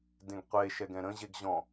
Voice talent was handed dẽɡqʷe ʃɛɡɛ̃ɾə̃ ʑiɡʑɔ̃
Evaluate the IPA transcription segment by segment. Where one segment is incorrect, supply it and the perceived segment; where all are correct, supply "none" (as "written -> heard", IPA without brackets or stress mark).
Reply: i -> e